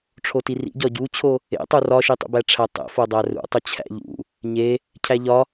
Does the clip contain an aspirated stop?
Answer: yes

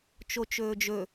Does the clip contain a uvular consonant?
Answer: no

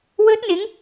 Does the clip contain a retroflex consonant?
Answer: no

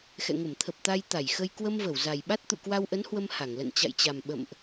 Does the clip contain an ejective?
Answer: no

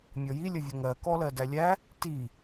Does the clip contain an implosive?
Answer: no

